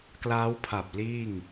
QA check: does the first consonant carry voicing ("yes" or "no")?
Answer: no